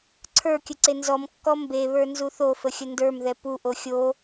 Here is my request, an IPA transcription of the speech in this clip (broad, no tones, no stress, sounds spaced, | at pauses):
ǀʰ ə˞ kʲ ə ǀ e n z ɔ m kː ɔ m b e β ə˞ n z u θ o f ə xʲ ə n d ə˞ m ð ɛ p u ʔ o xʲ o